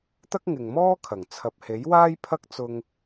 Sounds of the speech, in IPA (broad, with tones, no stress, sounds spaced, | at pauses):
t̪ ɐ˥ k̚ ŋ ɪ˨ ŋ m ɔː˥ kʰ ɐ˨˩ ŋ t͡sʰ ɐ˧ p̚ h e˨˥ j w aː˥ j pʰ ɐ˥ k̚ t͡s ʊ˥ ŋ